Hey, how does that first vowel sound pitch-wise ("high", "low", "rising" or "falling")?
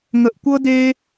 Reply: high